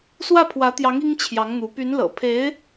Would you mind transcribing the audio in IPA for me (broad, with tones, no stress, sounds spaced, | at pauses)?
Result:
s w ä˥˩ pʰ w ä˧˥ t̪ j ɑ˧˥ ŋ i˥ ŋ t͡ɕʰ j ɑ˧˥ ŋ n̪ u˧˥ p y˧˥ n l ɤ̰˨˩ pʰ e˧˥ ɪ̯